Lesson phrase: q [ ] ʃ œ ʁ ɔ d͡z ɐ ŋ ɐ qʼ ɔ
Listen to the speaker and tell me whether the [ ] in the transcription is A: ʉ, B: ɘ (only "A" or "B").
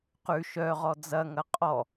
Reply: A